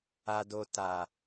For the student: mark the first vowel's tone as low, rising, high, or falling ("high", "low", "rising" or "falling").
low